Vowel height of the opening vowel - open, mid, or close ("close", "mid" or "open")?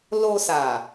mid